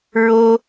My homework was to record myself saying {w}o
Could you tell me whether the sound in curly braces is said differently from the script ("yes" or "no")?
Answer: yes